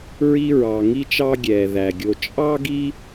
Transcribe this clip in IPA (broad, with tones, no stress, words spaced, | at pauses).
ɹi˦ɹɑ˧ŋi˦t͡ʃɑ˦ ɡʲɛ˨ ðæ˨ɡʲo˧ t͡ʃʼɑ˦ɡi˦